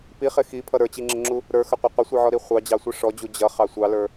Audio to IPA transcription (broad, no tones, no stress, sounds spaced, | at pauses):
p i χ ɪ x i pʰ ʌ ɾ ə˞ t͡ɕ i ŋ͡ǁ ɪ ŋ͡ǁ u | ɾ ə˞ x ə qʷ ə qʷ ɪ sʷ i ʕ ɔ ɾ i χʷ ɑ d͡ʑ ɑ sʷ i ʂ ɔ d͡ʑ u d͡ʑ ʌ χ ɑ sʷ ɑ l ə˞